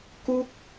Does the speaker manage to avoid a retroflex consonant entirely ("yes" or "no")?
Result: yes